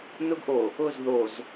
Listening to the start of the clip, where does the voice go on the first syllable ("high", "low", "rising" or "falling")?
high